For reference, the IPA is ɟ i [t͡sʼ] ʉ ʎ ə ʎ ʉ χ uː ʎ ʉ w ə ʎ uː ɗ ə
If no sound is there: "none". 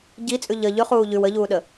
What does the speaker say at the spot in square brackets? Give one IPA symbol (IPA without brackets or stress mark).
t͡sʼ